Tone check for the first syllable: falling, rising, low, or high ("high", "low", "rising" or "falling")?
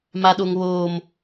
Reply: high